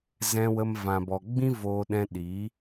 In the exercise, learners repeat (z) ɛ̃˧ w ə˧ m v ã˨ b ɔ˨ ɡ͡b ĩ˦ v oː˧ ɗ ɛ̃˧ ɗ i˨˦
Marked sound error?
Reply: no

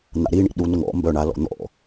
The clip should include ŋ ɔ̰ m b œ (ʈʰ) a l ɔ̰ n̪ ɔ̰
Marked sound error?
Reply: yes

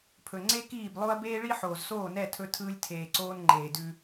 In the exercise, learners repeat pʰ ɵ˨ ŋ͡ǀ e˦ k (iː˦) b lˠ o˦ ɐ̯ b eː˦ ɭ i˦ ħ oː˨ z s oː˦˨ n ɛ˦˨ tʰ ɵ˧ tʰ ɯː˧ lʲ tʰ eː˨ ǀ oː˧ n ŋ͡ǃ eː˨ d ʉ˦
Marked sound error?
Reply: yes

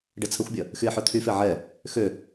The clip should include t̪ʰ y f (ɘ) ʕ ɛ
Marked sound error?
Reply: yes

